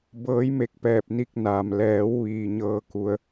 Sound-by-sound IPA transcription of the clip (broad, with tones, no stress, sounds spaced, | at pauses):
b ɤː˩˧ j m e˧˩ k̚ p ɛː˧˩ p̚ n i˧ k̚ n aː˩ m l ɛː˩˧ w ʋ iː˩ ɲ ɤː˧ k u˩˧ ə̯